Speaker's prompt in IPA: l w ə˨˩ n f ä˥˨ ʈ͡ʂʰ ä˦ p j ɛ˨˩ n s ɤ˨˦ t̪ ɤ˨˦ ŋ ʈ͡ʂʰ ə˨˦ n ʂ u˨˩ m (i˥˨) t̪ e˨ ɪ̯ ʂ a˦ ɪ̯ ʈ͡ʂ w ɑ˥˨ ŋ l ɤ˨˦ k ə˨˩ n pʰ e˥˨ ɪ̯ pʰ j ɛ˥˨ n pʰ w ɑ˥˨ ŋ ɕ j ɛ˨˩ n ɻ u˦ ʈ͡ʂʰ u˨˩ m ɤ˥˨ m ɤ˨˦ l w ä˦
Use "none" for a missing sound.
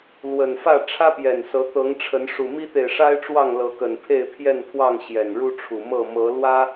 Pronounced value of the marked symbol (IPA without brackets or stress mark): i˦